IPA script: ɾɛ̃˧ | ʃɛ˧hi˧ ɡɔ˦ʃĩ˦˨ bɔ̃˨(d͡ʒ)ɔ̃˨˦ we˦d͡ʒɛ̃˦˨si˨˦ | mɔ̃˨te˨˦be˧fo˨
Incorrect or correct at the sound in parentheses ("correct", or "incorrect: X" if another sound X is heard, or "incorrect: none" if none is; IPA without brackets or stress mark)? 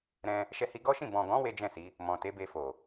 incorrect: ɡ